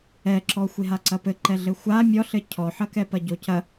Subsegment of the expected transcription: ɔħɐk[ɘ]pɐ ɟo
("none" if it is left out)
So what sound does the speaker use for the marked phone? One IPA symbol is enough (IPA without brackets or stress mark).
ɛ